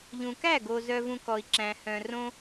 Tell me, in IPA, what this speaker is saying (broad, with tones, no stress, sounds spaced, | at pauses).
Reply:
ʎ ũ˨ k æ˦˨ ɡ o˨ z œ˧ v ũ˧ k ɔ˨ i̯ ǁ æ̃˨ h œ̃˨ r õ˦